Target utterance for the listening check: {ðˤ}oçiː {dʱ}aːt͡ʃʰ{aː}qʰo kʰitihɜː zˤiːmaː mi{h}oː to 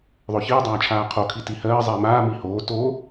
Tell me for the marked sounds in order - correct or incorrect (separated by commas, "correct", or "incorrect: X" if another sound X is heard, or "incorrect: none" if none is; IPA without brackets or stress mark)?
correct, incorrect: dˤ, correct, correct